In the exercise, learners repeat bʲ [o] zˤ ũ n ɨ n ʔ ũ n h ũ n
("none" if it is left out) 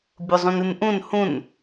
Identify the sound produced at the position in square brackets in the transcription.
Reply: o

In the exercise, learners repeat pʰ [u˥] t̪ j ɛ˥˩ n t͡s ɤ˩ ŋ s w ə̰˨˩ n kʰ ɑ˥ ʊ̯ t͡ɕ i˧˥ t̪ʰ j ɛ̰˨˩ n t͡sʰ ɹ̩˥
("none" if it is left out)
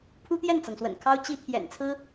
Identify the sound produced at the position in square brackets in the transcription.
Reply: u˥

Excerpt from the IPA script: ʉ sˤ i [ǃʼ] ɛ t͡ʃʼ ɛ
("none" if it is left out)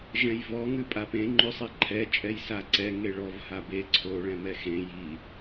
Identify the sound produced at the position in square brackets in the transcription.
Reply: ǃʰ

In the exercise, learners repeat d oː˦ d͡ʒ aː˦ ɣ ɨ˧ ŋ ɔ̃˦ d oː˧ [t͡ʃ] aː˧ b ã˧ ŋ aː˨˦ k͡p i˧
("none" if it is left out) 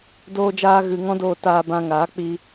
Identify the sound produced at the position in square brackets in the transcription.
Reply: t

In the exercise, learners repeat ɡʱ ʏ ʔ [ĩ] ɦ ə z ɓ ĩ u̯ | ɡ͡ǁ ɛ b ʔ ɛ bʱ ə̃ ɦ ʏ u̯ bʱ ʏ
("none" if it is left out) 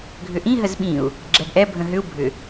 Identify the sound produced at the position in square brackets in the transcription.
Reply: ĩ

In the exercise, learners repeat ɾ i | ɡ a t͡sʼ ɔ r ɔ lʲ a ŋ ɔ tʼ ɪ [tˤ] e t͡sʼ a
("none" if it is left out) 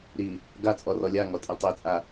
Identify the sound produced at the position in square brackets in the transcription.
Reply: tˤ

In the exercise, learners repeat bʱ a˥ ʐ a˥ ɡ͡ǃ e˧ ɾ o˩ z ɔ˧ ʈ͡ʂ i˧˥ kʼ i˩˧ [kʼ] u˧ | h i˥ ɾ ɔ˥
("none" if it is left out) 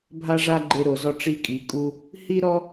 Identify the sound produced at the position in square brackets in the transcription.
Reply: kʼ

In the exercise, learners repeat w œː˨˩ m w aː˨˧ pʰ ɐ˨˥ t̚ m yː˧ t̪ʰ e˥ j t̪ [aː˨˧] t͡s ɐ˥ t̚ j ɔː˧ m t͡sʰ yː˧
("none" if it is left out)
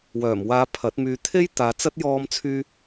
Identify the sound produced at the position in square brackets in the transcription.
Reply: aː˨˧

